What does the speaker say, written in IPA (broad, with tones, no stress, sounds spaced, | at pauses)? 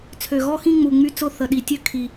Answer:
t͡sʰ ø˨˩ ɣ ɔ˦˨ x ĩ˦˨ ŋ͡m u˨˩ ŋ͡m y˦˨ t͡s ʊ˦˨ θ ə˨˩ ɗ i˨˩ tʲ ø˦˨ kʰ i˨˩